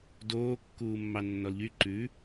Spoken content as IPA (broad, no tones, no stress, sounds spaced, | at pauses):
d oː kː uː mː ɑ nː ɔ l ʎ y ǃ ʉ